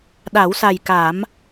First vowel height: low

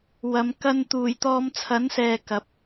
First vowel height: low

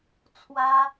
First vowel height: low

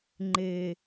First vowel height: mid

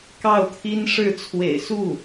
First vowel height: low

